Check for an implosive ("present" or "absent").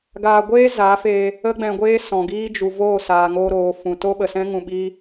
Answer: present